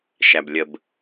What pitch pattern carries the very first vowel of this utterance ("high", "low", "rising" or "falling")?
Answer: low